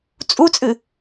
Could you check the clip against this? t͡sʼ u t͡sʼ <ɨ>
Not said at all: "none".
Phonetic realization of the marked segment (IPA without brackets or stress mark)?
ɨ